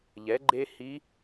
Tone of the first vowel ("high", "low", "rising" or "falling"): rising